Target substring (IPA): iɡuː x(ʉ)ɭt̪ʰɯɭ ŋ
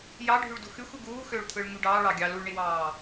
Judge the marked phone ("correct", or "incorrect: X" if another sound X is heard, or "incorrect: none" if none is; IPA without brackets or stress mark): incorrect: ø